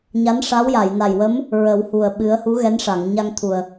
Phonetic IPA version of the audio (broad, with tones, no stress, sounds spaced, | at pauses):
ɲ a˧˥ n ʂ a˧˥ w j a˨˩˨ j n a˨˩ j w ə˧˥ m | ɹ ə˨˩˦ w h u˨˩ ə̯ ɓ ɨ˧˥ ə̯ h u˧˥ ɣ ɛ˧˥ n ʂ a˨˩˨ ŋ ɲ a˧ ŋ t̪ʰ u˨˩ ə̯